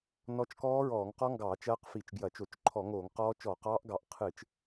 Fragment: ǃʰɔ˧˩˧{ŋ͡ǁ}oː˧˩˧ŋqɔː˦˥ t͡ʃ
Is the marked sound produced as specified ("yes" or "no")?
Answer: no